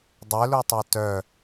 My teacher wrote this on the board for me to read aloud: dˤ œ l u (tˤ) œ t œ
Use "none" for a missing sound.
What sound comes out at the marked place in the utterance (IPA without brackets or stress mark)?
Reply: tˤ